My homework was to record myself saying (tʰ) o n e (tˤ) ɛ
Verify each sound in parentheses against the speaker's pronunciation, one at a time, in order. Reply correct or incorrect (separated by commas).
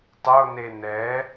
incorrect, incorrect